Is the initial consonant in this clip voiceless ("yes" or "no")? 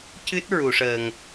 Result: yes